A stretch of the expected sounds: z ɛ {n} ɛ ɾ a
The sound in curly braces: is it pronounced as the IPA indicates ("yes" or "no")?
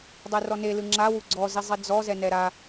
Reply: yes